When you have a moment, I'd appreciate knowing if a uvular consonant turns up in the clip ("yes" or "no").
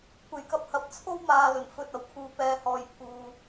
no